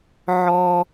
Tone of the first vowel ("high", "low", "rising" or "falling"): high